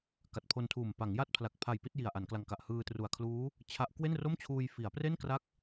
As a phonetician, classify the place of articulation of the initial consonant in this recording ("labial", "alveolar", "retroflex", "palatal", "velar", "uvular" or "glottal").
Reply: velar